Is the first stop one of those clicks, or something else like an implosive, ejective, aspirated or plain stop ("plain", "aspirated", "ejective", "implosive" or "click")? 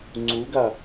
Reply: click